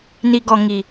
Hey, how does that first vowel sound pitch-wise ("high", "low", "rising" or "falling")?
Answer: low